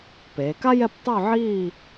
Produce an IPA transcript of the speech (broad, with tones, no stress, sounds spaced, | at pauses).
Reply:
p eː˩˧ k a˥ j ɛ˥˧ p tˤ o˥˧ ʕ i˥˧